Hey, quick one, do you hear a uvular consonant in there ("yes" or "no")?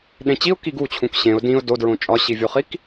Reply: yes